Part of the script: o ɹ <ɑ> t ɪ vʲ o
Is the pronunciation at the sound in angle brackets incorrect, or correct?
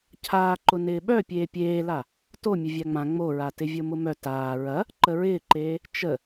incorrect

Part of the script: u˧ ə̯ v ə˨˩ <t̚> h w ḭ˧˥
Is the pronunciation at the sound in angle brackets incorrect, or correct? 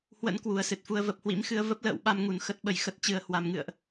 incorrect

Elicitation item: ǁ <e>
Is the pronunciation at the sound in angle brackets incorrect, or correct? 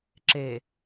correct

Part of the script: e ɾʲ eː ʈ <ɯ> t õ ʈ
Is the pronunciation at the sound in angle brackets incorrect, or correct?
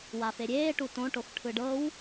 incorrect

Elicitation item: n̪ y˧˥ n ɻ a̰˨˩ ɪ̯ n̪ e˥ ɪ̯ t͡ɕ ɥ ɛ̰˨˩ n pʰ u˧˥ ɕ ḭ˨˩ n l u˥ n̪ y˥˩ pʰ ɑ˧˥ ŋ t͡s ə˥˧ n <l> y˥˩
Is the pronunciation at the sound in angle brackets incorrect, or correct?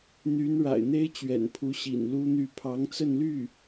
correct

